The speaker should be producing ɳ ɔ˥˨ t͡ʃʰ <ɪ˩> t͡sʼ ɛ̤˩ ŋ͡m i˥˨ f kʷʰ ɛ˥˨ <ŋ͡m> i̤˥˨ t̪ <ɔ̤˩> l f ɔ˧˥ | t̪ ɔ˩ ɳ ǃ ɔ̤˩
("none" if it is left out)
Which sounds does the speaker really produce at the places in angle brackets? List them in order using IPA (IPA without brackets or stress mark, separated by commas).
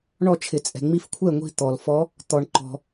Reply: ɪ˩, ŋʷ, ɔ˩